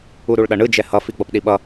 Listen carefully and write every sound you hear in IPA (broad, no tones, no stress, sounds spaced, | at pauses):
u ɾ u ɭ ɗ ʌ ɳ ɯ d͡ʒ ɛ h ʌ f i ɡ͡b ʌ p ɗ i ɓ ʌ